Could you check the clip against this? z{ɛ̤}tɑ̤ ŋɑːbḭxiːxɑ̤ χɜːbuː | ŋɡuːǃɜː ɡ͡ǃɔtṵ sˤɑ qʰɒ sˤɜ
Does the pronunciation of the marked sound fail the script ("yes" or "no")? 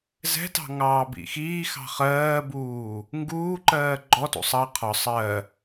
no